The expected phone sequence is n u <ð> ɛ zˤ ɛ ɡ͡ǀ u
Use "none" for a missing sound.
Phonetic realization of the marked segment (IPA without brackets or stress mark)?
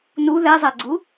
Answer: ð